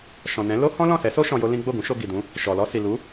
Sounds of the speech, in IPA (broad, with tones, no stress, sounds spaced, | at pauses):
ʃ ɔ̃˨ n ɛ̃˨˦ l o˦ h ɔ̃˦ l ɔ̃˦˨ s ɛ˨˦ s o˦ ʃ ɔ̃˧ j o˦ l ĩ˦ ɡ͡b o˦˨ ɡ ũ˨˦ ʃ o˧ ɡ i˨ d ũ˨˦ | ʃ ɔ˨ l ɔ˧ s i˨ l u˨˦